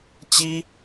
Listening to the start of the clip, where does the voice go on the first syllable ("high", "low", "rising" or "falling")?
high